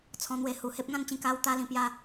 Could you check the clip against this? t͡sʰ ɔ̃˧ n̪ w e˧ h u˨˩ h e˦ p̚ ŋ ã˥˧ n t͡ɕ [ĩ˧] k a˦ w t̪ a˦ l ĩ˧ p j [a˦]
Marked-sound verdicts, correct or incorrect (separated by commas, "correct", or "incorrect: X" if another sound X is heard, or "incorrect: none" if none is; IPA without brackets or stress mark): correct, correct